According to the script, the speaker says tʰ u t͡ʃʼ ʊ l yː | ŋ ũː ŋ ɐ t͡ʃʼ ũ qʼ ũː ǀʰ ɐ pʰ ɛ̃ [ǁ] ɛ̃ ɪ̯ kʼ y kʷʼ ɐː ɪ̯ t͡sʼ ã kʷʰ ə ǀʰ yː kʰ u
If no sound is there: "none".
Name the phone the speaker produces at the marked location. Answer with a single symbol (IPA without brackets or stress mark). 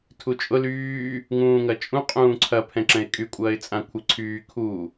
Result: ǁ